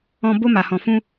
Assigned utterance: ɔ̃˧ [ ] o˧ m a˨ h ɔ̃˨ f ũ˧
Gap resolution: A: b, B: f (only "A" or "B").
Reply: A